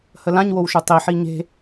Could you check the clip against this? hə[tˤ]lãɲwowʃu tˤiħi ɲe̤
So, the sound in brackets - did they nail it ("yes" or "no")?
no